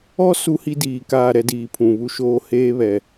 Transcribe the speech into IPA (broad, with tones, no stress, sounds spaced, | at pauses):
ɔ˦ s u˦ h i˦ d iː˨ k aː˦˨ ɾ ɛ˦ d iː˨ pʰ ũ˨ β u˦ ʃ oː˦ h eː˦ β ɛ˨